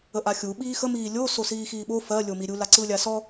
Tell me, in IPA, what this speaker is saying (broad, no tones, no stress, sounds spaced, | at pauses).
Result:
ə ʔ a xʲ u ɓ iː x ə m iː lʲ o s o s iː x iː ɓ o f ɜ lʲ o m i ɾʲ u l a ǀ ɯ lʲ a s ɔ